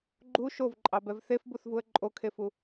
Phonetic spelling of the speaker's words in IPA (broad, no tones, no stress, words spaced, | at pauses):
ɡ͡ǃu ʃovǃʼɑbɛv θefbuθvuə̯ ǃʼokʰefu